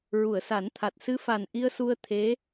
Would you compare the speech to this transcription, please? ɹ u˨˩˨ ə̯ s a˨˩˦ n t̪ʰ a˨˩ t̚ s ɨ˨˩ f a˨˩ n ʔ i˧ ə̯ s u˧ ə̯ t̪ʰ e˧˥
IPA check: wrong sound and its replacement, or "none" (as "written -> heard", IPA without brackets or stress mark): ɨ˨˩ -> ɨ˧